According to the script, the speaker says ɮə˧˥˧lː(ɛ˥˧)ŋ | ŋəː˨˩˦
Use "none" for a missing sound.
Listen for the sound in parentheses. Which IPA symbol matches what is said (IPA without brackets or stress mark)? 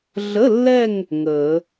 ɛ˥˧